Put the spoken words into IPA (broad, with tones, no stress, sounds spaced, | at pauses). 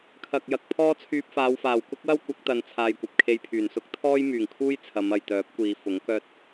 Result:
kʰ ɐ˨ k̚ j ɐ˨ k̚ pʰ ɔː˥ t͡sʰ yː˧ p̚ f aː˨˧ w f aː˨˩ w k ʊ˥ k̚ w ɐ˥ w kʷ ɐ˨˥ k̚ t̪ ɐ˨˧ n t͡sʰ aː˨ j kʷ ɐ˨ p̚ kʰ e˧ j pʰ yː˨˩ n s ʊ˥ k̚ t̪ʰ ɔː˥ j m yː˨˩ ŋ kʰ uː˥ j t͡sʰ ɐ˨˧ m ɐ˨ j t̪ œː˨˥ p̚ kʷ iː˨˧ f ʊ˨˥ ŋ k œː˧ t̚